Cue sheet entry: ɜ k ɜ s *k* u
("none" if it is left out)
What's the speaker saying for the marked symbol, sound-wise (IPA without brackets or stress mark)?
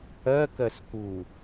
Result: k